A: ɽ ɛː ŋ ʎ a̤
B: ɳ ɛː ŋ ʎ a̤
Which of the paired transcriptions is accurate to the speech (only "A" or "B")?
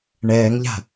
B